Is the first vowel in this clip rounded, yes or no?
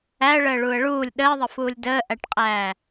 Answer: no